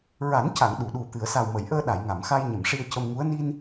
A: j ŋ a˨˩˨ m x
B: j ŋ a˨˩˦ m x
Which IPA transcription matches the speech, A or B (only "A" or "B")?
A